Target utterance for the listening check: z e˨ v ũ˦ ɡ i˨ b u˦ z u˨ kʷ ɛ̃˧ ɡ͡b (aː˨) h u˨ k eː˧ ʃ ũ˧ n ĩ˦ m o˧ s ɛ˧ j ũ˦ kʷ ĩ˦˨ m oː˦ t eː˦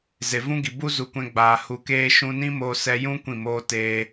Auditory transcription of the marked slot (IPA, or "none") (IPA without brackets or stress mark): aː˨